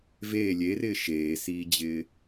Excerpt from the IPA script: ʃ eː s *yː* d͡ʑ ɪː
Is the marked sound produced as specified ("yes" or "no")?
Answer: no